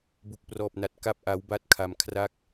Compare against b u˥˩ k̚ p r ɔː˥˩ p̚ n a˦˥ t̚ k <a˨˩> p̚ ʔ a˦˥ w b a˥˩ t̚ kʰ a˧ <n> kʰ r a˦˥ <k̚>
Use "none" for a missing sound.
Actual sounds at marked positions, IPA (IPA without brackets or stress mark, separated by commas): a˥˩, m, k̚